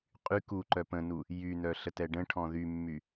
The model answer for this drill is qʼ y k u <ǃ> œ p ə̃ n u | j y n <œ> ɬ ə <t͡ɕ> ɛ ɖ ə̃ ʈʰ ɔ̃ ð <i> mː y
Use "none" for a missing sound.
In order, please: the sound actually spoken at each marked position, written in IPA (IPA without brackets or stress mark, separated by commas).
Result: ǃ, œ, t, y